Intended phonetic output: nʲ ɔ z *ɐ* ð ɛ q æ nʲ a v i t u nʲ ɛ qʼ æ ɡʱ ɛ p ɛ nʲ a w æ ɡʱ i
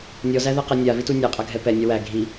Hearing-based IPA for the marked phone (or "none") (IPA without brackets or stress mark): æ